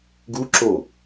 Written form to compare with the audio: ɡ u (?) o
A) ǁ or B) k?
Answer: A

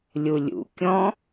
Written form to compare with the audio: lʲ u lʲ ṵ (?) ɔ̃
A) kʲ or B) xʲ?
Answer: A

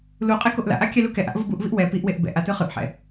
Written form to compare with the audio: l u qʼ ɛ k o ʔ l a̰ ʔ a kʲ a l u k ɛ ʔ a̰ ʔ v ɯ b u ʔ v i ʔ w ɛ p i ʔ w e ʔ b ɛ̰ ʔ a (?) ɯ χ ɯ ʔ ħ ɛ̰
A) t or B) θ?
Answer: A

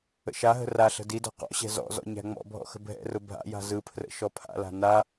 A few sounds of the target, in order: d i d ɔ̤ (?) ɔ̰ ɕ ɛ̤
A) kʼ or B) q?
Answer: B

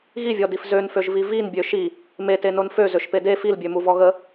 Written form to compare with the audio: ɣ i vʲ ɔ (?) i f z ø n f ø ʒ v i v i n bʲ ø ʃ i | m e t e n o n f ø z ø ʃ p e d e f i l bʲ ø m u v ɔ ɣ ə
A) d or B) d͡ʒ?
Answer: A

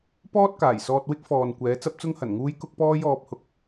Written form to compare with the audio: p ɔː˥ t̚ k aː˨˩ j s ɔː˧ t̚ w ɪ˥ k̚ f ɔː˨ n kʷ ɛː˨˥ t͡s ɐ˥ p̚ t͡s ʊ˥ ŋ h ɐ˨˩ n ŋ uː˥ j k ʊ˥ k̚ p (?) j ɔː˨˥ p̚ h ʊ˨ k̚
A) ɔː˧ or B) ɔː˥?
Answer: B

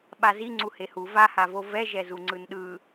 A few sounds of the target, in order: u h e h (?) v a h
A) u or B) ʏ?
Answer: A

